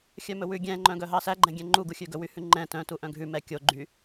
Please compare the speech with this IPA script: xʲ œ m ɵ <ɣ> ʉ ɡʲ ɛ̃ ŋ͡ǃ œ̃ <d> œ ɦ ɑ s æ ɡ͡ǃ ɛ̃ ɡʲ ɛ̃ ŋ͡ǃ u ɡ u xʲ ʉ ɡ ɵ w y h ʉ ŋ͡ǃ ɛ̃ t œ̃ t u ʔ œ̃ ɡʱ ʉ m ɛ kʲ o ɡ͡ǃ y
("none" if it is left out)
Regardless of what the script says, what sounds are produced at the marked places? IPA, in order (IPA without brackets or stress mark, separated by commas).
w, ɡ